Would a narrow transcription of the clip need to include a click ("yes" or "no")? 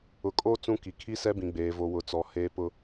no